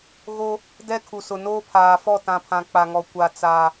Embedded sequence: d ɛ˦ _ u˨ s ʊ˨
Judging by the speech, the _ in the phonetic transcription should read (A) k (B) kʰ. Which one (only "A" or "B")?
B